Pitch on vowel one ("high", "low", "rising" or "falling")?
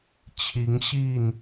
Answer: rising